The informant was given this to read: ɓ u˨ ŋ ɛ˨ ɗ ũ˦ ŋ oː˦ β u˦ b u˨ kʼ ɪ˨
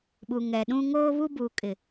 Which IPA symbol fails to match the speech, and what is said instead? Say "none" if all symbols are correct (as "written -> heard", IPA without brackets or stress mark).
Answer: none